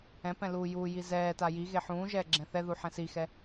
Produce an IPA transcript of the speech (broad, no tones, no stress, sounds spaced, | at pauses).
ɛ̃ p ɛ̃ l uː j uː j i z ɛː t a j i ɣ e ħ ũː ʒ ɛː ɡ͡ǁ ɛ̃ θ ɛ ð u ħ ɛ̃ s i x ɛ